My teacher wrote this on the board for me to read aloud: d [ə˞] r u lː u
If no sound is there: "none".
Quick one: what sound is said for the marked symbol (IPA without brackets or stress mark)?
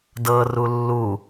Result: ɤ